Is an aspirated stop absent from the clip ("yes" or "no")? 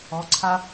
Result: no